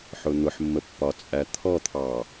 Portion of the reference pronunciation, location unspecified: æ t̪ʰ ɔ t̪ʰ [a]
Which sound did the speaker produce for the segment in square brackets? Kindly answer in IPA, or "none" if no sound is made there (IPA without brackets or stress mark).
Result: ɑ